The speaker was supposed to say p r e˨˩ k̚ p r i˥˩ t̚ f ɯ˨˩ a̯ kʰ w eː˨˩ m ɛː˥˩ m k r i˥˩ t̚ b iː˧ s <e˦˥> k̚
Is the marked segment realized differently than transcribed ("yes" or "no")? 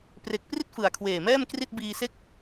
yes